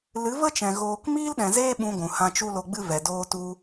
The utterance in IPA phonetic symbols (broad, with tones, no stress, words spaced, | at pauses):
lɨ˨˦və˦t͡ʃɛ̃˨ ɣoː˧k miː˦lɗɛ̃˨zeː˦ ɓũ˧ɡʷũ˨ hã˧t͡ʃu˦lo˧ɡ͡bɨ˦ vɛ˨doː˧tu˧